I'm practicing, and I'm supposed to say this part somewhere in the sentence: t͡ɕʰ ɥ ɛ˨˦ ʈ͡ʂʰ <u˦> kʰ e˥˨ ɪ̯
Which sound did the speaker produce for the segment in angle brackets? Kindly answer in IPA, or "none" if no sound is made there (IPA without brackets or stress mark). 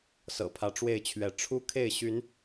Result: u˦